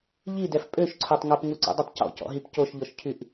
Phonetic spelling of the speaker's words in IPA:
ʎ i d ɛ f pʼ ø ʃ ǀʰ o tˤ ŋ o p ŋ u ǀ ɔ̰ dˤ i tˤ c ɔ̰ c ɔ̰ ɦ i p c o ʃ ʎ ɔ ʃ cʰ y ʔ

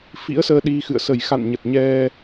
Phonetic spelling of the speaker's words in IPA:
f ḭ˧˥ ə̯ s əː˧ ɗ i˧ x ɨ̰˧˨ ə̯ s ə˧˩ j x a̰˧˨ n ɲ ə˨˩ t̚ ɲ ɛ˧

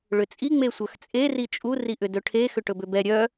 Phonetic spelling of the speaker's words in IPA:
ɭ ʏ t͡sʼ i ŋ͡m e sʷ œ x t͡sʼ e r i t͡ʃʼ u r i ʔ ʏ d ɵ ʈʰ e x ʏ ʈ ɵ b ʏ b ɛ ɾʲ œ

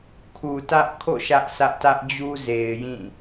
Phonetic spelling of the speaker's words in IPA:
kʰ u˨ t ä˦ ʔ kʰ o̰˦˨ ʃ ä˦ ʔ s ä˦ ʔ t ä˦ ʔ d͡ʑ u˦ z e˨ ɪ̯ j ĩ˦˨

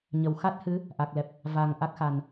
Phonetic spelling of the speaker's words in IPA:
ɲ ə˨˩ w x a˦˥ t̚ h ɨ˧˥ | ʔ a˨˩ k̚ l ɛ˨˩ p̚ | v a˨˩ ŋ ʔ a˦˥ k̚ x a˨˩ n

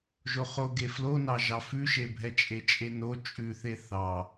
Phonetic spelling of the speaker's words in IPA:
ʒ o χ o ɡ e f l o n ɑ ʒ ɑ f ʉ ʃ e bʱ ɛ t͡ʃʼ e t͡ʃʼ e n o t͡ʃʼ ʉ θ e θ ɑ

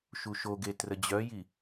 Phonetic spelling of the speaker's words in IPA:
ʃ u ʃ o ɡ e t r ə d͡ʑ œ j i

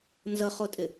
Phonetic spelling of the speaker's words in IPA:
n z ʌ χ o tʼ ɪ

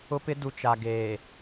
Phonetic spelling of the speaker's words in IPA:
ʊ˦ p ɪ˦ d u˨ t͡ʃ a˨ ɡ eː˨

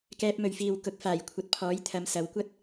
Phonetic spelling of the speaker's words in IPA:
k ɛː˧ p̚ m ɵ˨ ɥ f iː˨ w k ʊ˨˥ k̚ f aː˨˩ j kʷʰ ɐ˨ t̚ pʰ ɔː˨˥ j t̪ʰ ɐ˨˧ m s ɐ˨˧ w kʷ ɐ˥ t̚

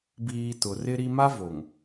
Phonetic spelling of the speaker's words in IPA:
b iː˨ t ʊ˨ r ɪ˦ ɾ i˦ m a˦ v o˨ ŋ

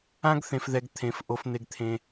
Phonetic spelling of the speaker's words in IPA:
ã˦ ɡ θ ẽ˧ f ð ɛ˧ ɡ t̪ʰ ẽ˨˦ f ʔ o˧ f n̪ e˧ ɡ t̪ʰ ẽ˧

